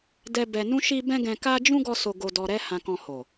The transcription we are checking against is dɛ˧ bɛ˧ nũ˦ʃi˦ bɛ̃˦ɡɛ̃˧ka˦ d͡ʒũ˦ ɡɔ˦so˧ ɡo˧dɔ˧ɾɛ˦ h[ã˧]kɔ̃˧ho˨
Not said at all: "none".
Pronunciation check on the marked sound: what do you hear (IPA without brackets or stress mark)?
ã˧